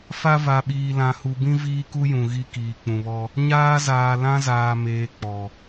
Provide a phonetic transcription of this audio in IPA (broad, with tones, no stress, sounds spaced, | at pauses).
f a˦ v a˨ ɓ iː˨ l ã˨ h u˨ b ĩ˦ v iː˦ k u˦ j ũ˨ ɣ i˦ k iː˨ k͡p ũ˨ β ɔ˦ | ɲ aː˦ z aː˨ l ã˦ z aː˨ m eː˨ k͡p ɔ˨